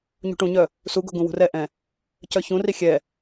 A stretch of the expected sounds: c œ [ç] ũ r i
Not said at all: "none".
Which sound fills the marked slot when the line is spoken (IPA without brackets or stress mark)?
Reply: ç